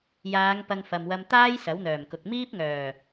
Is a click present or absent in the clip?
absent